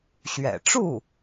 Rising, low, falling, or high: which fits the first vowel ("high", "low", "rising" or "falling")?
low